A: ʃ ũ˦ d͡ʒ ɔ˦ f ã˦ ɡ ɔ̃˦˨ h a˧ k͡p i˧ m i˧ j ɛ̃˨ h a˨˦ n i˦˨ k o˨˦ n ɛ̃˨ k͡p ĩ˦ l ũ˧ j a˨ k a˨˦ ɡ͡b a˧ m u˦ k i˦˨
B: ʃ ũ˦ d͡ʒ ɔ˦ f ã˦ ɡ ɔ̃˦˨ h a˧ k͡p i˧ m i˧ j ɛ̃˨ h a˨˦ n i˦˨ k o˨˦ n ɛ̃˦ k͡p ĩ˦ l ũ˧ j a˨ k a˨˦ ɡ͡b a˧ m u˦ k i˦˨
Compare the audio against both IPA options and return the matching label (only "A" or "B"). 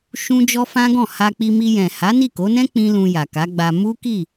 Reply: B